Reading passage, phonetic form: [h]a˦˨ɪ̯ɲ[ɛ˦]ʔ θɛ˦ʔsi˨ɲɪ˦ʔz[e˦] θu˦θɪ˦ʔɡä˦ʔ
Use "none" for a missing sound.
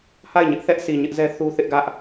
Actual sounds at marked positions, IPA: h, ɪ˦, ɛ˦

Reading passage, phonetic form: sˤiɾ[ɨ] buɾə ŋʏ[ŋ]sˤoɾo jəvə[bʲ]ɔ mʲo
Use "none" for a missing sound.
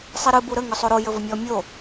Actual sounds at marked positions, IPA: ɨ, none, mʲ

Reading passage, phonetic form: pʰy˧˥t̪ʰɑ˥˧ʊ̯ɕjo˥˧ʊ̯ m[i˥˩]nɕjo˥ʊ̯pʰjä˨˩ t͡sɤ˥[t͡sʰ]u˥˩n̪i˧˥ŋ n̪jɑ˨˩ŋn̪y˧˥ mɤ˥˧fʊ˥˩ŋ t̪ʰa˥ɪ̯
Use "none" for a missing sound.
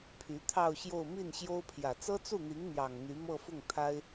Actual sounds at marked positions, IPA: i˥˩, t͡s

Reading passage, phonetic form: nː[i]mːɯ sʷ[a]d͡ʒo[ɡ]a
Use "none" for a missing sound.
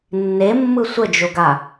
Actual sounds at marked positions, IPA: e, ə, ɡ

